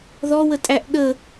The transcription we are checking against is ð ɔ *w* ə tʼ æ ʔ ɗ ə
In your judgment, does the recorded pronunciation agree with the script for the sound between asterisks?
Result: yes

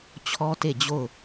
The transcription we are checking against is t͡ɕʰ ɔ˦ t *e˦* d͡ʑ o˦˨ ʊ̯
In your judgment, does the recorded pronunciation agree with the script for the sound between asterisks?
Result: no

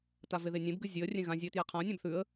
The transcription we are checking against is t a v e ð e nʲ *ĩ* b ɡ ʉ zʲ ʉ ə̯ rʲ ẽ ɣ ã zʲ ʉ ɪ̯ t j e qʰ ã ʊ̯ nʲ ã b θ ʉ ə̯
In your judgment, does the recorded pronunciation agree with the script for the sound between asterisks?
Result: no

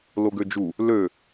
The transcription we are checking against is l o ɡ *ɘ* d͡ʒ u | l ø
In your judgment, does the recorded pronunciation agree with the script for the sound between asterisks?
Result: no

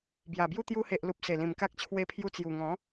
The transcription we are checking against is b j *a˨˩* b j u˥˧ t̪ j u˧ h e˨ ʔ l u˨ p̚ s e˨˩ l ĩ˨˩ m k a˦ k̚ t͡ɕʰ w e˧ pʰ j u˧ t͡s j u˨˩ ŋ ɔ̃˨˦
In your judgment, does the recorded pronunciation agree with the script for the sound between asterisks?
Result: yes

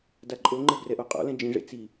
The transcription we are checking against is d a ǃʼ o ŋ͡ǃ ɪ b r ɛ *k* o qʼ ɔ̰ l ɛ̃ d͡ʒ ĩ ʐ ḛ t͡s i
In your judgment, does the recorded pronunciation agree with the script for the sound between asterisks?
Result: no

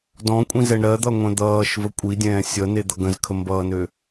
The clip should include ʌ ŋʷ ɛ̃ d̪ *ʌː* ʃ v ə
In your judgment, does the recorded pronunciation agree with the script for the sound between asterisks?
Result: yes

